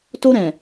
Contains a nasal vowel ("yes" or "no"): yes